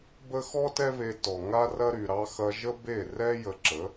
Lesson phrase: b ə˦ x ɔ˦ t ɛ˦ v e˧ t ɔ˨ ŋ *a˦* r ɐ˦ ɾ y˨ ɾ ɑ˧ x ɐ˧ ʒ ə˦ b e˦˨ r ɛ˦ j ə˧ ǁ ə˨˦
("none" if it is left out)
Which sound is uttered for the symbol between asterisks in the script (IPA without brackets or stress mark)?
a˦